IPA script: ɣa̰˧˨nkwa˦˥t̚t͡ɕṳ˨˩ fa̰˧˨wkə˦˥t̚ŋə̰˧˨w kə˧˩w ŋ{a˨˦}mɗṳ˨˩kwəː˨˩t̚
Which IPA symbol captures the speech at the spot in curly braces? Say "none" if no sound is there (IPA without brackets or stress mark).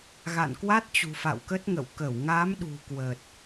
a˨˦